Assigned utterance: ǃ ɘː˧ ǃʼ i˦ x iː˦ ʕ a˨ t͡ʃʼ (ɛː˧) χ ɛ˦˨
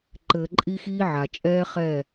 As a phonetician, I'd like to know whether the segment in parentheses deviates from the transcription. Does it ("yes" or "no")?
yes